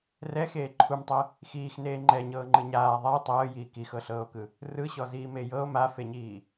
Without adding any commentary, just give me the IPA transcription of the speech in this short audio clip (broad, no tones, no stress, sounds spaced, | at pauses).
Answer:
r ɛ x eː ǃʰ u m tˤ ɛ | x iː x n eː ŋ͡ǃ ɛ ɲ ɤː ŋ͡ǃ ɯ ɲ aː ðˤ a j tˤ ɤː j iː k i x ɤ ɬ ɤː o̯ k ɯ | r ɯ ɕ ɔ z iː m e j ɤ o̯ m a f e ɲ iː